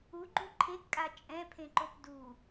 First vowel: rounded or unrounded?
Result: rounded